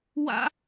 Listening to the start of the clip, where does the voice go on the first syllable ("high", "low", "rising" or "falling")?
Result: high